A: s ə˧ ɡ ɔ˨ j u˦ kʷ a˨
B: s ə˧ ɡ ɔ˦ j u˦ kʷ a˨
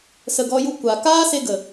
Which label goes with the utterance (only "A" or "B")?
B